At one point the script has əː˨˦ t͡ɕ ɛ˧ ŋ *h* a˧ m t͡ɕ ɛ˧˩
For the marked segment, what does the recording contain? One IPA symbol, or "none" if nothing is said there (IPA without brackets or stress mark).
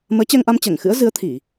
ʔ